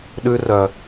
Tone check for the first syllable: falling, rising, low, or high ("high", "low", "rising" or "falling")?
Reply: high